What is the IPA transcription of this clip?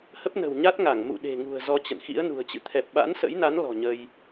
h ə˦˥ p̚ n ə̤˨˩ w ɲ a˦˥ t̚ ŋ a˧˩ ŋ m ṵ˧˨ ɗ e̤˨˩ ŋ ṳ˨˩ ə̯ z ɔ˧ t͡ɕ ə̰˧˨ n x ḭ˧˥ ə̯ n ṳ˨˩ ə̯ t͡ɕ ɨ̰˧˨ t̪ʰ ɛ˨˩ p̚ ɓ a̰˧˥ n s ə̰˧˥ j n a˨˦ n l ɔ̤˨˩ ɲ ə˧ j

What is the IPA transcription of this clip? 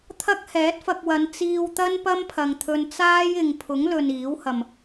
t̪ʰ ɐ˥ k̚ h ɛː˨˥ t̚ f ɐ˧ k̚ w ɐ˨˧ n t͡s iː˧ w t̪ ɐ˥ n p ɐ˥ m pʰ ɐ˨ ŋ t̪ʰ ɵ˧ n t͡s aː˥ j ɪ˨ ŋ pʰ ʊ˨˥ ŋ l ɵ˨ n iː˨˥ w h ɐ˨ m

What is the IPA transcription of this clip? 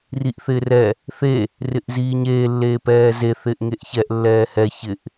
r i ʔ θ ɪː r ɛ | θ e | r ɪ ʔ z iː ɲ eː lː eː p ɛː z e θ ɪː ʔ ŋ e ʔ ç ɛ ʔ lː ɛː h ɛ ç ɪ ʔ

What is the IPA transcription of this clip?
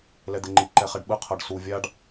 l ɛ d̪ e ŋ͡ǃ i ǃ ɛ χ ɛ ɖ ɓ ɯ qʰ ʌ ɖ s u vʲ a ɖ

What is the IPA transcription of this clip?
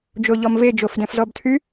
d͡ʒ o ʎ ɔ m v e d͡ʒ o f d ɛ̃ f z ɔ b tʰ y

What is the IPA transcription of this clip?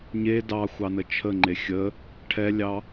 ɲ e d ɑ xʷ ɑ n ə t͡ʃʰ ə ŋ͡ǃ e xʲ ə | ʈʰ ɛ lʲ ɑ

